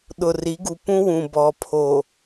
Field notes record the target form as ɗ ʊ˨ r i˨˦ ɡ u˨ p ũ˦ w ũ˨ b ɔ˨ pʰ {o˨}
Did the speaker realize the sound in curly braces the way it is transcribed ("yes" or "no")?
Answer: yes